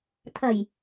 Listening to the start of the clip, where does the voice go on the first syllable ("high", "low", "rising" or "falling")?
low